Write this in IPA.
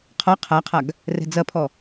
qʰɔ qʰaqʰaɡ | rɛ̤d͡zɐpʰɔ

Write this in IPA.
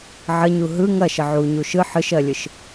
ʕəɲu ɦɯ ŋɐʃə ʕuɲu ʃɯ ħɯʃɜlʲɯʃ

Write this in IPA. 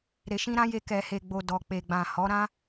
ɾe˨ʃĩ˧ɾã˧ je˧kɛ˨he˨ɡ͡bo˨ dɔ˨ k͡pe˨ɡ͡bã˨hɔ˨˦ ɾã˦

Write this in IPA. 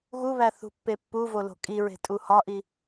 ɣuβæ θṳpːepːuvo lo̤kʼiɹe̤ tʼuhɒʔi

